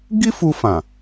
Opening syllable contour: high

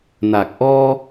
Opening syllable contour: low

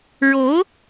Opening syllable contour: rising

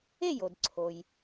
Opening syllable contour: falling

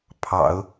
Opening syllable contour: low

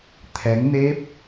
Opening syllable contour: rising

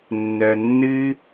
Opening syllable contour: low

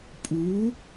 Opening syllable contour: rising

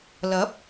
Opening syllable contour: rising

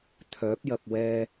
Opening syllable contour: rising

